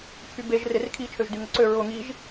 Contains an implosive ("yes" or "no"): no